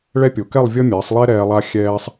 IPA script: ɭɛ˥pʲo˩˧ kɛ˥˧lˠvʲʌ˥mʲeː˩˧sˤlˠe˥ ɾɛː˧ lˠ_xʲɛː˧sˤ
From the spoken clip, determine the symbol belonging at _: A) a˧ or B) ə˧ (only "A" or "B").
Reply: A